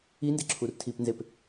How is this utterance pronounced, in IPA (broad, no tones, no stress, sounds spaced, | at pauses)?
i n d e ǁʰ u r tʰ i p n z e p